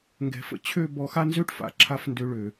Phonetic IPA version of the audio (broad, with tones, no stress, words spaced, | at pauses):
ŋɡɛ̤˧fə̰˦ t͡ɕʰø˦˨ bɔ˧xa˦nzø˦ʈfa̰˨ ǁʰa˦fndø˧ɭø˨